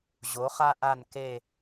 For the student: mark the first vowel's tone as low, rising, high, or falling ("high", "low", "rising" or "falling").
rising